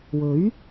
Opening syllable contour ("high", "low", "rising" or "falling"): rising